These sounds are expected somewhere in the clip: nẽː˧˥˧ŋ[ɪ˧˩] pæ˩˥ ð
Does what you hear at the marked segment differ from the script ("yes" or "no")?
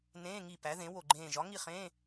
yes